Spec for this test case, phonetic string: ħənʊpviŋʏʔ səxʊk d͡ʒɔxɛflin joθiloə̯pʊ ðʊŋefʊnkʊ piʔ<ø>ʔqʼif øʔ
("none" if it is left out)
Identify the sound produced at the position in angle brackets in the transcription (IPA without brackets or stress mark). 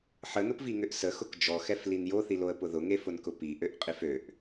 ø